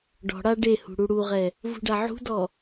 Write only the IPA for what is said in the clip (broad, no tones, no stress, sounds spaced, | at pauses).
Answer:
ɖ ɔ̤ ɽ a ɖ e h ṳ ɽ u ɽ u ʁ ɛ | v ṳ ɖ a ʕ ṳ d ɔ